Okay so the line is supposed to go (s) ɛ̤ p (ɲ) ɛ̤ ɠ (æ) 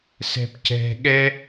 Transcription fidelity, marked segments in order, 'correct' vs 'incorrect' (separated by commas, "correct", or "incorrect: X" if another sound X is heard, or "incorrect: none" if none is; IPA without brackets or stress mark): correct, incorrect: c, incorrect: ɛ